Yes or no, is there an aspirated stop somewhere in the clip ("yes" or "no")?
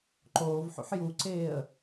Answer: no